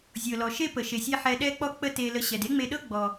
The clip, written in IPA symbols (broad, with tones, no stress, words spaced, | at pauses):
zʲɤ˩lɔ˩ʃe˥ pə˩ʃe˩sʲe˧ ħɛ˧ɗɛ˥k͡pɔ˥ k͡pə˥te˧lə˧ɕɛ˩d e˥ŋ͡me˧ɗɤ˥ ɡ͡bɔ˩